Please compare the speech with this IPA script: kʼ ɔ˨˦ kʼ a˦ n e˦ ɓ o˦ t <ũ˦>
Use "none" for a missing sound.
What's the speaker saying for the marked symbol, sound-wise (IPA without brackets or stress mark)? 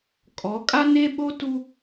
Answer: u˦